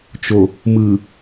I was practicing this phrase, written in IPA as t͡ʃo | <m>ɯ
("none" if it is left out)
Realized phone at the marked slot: m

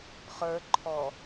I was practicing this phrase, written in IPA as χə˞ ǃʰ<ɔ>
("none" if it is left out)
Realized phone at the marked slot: ɔ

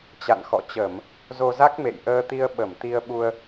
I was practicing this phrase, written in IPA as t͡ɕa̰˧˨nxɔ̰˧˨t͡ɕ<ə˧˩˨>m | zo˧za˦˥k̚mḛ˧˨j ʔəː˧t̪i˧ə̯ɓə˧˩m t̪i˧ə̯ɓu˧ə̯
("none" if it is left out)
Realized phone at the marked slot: ə˧˩˨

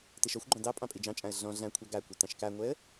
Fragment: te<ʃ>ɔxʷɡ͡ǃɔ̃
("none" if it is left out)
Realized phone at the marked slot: ʃ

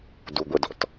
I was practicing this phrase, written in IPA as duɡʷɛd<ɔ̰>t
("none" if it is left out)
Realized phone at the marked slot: ɔ̰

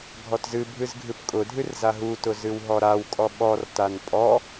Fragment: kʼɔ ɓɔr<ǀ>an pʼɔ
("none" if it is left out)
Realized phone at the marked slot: t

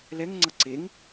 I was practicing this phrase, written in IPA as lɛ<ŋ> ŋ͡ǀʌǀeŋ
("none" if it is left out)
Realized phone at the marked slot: ŋ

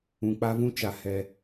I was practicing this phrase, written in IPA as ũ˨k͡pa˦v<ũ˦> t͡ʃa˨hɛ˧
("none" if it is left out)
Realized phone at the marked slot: ũ˦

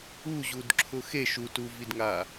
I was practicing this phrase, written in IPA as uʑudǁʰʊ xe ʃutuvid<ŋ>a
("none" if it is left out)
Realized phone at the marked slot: ŋ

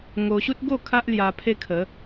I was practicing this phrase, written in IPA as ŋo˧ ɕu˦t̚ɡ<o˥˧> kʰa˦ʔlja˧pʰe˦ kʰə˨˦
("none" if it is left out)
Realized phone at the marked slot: o˥˧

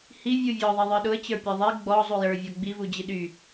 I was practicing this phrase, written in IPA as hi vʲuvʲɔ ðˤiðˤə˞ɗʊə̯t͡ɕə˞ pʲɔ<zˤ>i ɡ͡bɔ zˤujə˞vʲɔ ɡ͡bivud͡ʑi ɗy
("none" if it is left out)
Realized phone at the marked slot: ðˤ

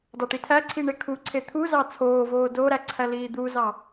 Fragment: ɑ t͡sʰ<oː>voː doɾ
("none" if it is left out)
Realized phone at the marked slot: oː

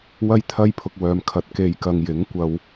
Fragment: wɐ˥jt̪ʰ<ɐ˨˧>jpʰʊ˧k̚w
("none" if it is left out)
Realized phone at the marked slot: ɐ˥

